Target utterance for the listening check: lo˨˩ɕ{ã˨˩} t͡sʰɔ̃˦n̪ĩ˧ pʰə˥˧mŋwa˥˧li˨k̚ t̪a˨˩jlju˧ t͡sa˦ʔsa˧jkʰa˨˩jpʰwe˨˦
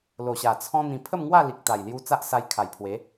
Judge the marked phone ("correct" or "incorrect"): incorrect